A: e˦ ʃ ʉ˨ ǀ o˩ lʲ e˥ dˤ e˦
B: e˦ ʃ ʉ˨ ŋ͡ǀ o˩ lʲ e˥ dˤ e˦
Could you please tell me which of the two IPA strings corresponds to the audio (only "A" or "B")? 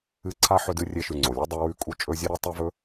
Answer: B